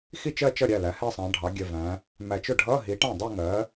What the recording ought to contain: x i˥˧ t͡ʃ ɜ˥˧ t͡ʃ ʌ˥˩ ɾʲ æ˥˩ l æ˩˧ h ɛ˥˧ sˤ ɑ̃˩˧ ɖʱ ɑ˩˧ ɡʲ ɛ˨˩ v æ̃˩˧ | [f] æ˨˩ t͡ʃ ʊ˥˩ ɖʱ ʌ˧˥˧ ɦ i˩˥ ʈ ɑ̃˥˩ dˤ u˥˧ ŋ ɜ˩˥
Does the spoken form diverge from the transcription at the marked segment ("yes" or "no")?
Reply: yes